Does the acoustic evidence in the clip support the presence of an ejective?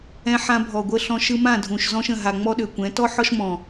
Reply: no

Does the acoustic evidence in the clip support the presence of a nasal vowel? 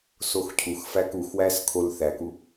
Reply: no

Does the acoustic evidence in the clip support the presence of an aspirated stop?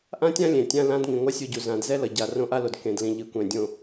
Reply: no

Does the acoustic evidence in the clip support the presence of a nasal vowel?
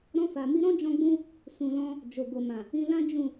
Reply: yes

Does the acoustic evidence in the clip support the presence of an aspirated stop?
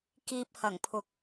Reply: yes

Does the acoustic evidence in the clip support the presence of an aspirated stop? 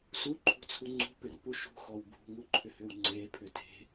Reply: yes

